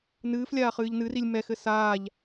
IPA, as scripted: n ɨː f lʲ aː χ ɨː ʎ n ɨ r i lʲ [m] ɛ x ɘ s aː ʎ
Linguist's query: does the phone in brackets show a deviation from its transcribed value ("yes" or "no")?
no